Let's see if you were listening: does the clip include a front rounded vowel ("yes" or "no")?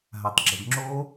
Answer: no